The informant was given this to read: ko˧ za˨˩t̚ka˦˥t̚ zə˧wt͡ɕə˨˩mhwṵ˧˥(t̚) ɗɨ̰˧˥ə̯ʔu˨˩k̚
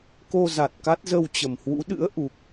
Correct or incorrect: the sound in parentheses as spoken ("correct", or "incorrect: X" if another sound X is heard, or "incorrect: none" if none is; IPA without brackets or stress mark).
incorrect: none